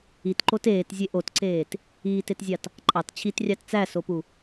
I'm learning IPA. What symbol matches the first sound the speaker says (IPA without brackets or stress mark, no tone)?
i